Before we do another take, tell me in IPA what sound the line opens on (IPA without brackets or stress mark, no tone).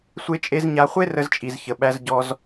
sʷ